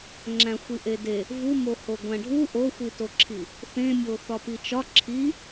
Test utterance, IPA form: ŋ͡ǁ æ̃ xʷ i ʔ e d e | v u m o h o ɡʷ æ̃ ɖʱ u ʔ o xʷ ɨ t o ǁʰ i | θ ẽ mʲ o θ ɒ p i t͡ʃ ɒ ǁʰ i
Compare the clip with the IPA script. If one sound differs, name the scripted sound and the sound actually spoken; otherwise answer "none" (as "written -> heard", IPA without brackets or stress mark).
ɨ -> i